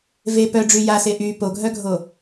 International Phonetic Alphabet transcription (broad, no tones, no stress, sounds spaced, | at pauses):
v e p œ ɖ͡ʐ y j a s e ʔ y p o ɡʱ œ ɡʱ o